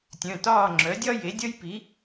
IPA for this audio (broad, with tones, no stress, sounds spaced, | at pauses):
tʲ œ̃˩˧˩ t ɒː˥˨ ŋ͡ǁ œ˩˥ dʲ ɒ˥ j e˩˥ dʲ ʌ˥ j p i˩˥